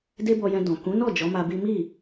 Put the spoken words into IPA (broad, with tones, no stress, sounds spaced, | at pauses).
d e˦ b ɔ˧ j ɛ̃˧ d ɔ̃˨ k ũ˨˦ n ɔ˦˨ d͡ʒ ɔ˨˦ m a˧ b i˦ m i˦˨